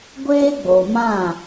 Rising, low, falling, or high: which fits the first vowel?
high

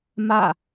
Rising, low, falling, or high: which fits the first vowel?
falling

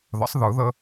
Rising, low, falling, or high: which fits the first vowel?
rising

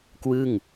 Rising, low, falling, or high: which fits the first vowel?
falling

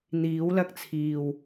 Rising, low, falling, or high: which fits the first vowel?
rising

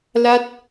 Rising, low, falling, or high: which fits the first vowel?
falling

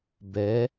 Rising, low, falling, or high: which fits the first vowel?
rising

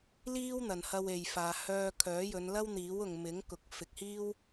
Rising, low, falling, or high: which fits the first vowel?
high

